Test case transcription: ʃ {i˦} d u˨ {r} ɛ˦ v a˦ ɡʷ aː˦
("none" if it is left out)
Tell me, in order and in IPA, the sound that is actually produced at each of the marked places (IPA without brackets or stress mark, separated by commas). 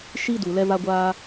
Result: i˦, l